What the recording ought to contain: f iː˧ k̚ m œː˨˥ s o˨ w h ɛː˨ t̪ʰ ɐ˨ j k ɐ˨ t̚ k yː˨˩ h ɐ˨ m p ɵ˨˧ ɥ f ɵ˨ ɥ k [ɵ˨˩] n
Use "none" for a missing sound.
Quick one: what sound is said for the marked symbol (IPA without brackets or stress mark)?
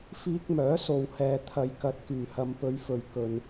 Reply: ɵ˨